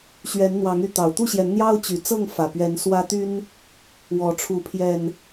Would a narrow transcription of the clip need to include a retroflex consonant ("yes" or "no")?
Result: yes